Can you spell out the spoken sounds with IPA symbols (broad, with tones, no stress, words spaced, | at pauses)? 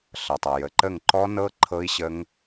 ɬʌ˩tˤʌ˩ jə˩ǃə˦˨ŋǃɔ˦˥nɤ˦˥ ǃʰɤ˦˥i̯ɕə˦˥ŋ